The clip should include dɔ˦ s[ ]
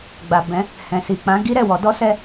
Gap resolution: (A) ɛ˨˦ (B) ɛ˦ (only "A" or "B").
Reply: B